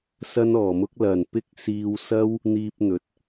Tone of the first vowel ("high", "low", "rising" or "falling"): high